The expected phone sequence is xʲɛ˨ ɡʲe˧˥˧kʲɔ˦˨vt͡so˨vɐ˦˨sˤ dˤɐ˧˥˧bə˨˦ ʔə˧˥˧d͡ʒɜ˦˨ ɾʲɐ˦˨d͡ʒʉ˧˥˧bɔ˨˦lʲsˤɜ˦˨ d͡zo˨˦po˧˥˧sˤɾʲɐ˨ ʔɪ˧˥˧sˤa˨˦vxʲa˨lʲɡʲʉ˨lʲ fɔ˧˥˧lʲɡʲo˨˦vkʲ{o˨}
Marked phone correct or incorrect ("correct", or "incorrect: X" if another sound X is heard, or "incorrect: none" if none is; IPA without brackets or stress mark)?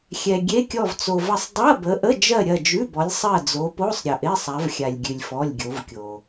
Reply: correct